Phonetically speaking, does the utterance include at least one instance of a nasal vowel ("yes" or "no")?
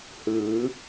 no